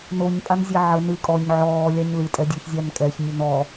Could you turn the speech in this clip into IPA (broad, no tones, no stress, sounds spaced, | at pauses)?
n o ɲ pʼ a n zʲ ɛ ʕ ə n ɨ kʼ ɔ ɲ ʕ ɔː lʲ a ɲ l ɨ tʼ ɛ dʲ o ç zʲ a n kʼ ɛ ç nʲ ə n ɔ